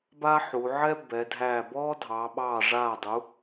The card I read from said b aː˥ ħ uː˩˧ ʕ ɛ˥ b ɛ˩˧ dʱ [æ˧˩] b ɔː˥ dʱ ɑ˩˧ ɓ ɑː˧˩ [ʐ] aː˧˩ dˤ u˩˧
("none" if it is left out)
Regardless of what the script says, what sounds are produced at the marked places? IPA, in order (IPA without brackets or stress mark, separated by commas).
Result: æː˧˩, ʐ